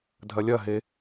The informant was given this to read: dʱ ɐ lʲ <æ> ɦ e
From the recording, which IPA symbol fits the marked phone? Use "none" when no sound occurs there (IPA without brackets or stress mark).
ɐ